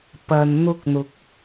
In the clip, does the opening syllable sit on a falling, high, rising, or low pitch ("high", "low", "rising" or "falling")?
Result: low